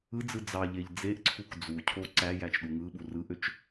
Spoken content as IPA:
ɯ d͡z ɯ d͡z ɑ ʎ e ʎ d͡z e ʔ ǀʰ u k d͡z u cʰ o ǀ æ j æ t͡ʃ ɗ u ŋ ɯ ɓ u r ɯ ʔ ø t͡ʃ

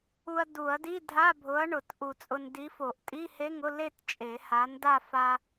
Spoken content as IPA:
u˧ ɐ̯ d u˨˩˦ ɐ̯ d i˧˥˧ dʱ a˧˥˧ bʱ ʊ˨˥ ɐ̯ ɳ ʊ˨˩˦ t ʔ u˨˩˦ t͡sʼ ʊ˧ n d i˨˥ f o˨˩˦ ʔ tʼ i˧˥˧ h e˧˥˧ ŋ ʊ˧˥˧ l e˥˧ t t͡ʃʼ e˨˩˦ h a˨˥ n d a˥˧ f a˧

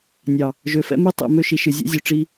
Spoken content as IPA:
nʲ ɑ˨ | ʒ ø˨ f ɛ̰˦ m ɨ˦ tˤ ḛ˨ m ø˦ ʃ i˨ ʃ ɨ˨ zʲ ɛ̰˦ zʲ ø˨ ʈ͡ʂ i˦

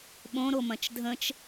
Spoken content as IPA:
ɓ õ ɾ o m ɐ̃ t͡ʃ dʱ ə̃ t͡ʃ

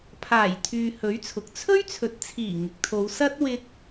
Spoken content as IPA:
pʰ aː˨˩ j t̪ʰ yː˨ h ɵ˨˥ ɥ t͡sʰ ʊ˨ k̚ t͡sʰ ɵ˥ ɥ t͡sʰ ɵ˨ t̚ t͡sʰ iː˨˩ ŋ ɪ˨ k̚ t̪ʰ o˨˧ w s ɐ˥ t̚ w ɪ˧ k̚

